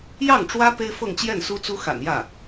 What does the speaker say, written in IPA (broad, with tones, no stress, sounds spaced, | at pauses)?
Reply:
j ɑ˥˩ ŋ ʈ͡ʂ w ä˥ p e˥ ɪ̯ f ɤ˥˧ ŋ t͡ɕ j ɛ˥˩ n s u˥ t͡s u˥ x a̰˨˩ n j ä˥˩